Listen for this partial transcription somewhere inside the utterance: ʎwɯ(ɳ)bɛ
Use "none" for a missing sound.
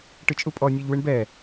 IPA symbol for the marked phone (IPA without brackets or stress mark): ɳ